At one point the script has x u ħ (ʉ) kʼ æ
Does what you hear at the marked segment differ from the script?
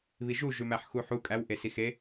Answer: yes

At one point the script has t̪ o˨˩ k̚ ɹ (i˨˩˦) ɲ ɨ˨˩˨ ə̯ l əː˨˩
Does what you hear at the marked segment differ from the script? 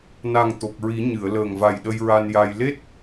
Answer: no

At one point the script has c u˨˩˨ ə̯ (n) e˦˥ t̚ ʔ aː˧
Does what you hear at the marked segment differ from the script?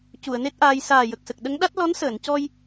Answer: no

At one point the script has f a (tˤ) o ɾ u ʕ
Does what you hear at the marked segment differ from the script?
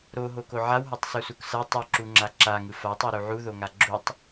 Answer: no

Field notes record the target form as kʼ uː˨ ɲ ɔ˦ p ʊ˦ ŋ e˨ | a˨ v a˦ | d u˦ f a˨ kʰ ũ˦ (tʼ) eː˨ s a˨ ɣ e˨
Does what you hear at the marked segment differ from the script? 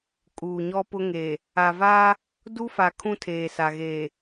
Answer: yes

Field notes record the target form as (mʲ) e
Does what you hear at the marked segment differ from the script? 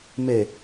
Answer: yes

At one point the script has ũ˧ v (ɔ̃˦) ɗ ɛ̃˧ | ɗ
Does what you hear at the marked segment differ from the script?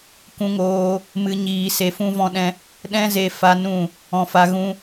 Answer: yes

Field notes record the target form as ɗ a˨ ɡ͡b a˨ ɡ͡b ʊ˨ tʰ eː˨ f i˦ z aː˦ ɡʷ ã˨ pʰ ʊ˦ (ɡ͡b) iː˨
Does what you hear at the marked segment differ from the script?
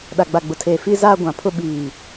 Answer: yes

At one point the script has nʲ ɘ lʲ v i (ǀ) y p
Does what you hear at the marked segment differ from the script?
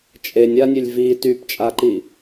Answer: yes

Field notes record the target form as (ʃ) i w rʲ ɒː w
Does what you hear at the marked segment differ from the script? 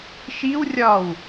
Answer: no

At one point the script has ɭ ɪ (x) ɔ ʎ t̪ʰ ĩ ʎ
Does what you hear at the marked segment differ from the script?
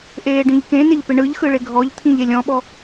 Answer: yes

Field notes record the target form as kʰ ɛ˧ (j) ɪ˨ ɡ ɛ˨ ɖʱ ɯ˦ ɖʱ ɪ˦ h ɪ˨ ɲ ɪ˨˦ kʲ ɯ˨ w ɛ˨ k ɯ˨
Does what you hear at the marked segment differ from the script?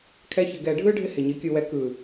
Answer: yes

